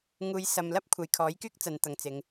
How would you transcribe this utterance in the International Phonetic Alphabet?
ŋ uː˨˧ j s ɐ˨ m l ɐ˥ p̚ kʷʰ ɐ˨ j kʰ ɔː˨˥ j k yː˥ k̚ t͡s ɐ˨˧ n t̪ ɐ˨ ŋ t͡s ɪ˨˧ ŋ

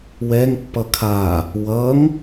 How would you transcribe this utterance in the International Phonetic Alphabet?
w ɛ ŋ pː ʌ kʰ a | w ʌ ŋ

